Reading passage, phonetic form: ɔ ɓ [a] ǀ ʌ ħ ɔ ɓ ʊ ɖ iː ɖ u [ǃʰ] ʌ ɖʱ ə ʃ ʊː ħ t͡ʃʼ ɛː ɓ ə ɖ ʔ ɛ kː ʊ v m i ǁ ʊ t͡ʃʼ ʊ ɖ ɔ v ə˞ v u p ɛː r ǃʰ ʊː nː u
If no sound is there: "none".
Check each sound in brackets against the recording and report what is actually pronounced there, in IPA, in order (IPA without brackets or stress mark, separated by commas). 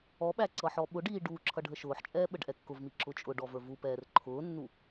æ, ǁʰ